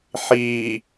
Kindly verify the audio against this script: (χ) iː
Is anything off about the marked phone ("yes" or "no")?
yes